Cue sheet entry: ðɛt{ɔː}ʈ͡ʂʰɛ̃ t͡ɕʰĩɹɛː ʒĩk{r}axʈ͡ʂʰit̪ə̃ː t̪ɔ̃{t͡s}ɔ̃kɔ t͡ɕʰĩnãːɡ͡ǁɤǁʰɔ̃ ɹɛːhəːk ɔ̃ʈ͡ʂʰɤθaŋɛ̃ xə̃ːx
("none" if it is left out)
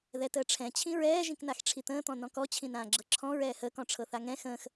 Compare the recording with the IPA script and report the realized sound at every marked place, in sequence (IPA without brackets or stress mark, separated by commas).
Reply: əː, n, n